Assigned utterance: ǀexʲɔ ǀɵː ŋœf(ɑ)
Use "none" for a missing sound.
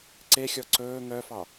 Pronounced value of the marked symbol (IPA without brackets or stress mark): ɑ